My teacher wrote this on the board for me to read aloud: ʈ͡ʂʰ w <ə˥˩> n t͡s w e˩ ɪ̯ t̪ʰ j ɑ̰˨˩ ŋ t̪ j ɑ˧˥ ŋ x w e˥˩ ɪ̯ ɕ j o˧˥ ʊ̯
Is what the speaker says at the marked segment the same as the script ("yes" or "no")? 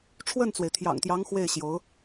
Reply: yes